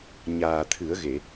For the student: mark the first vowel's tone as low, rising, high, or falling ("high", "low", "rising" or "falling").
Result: low